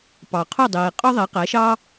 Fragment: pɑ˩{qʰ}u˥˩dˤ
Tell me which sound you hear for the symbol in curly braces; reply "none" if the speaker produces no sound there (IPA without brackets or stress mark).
qʰ